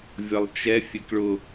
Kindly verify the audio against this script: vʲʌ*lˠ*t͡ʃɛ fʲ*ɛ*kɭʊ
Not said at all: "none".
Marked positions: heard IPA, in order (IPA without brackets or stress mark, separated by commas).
lˠ, ɛ